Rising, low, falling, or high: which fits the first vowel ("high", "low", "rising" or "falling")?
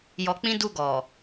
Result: low